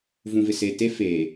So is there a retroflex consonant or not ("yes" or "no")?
no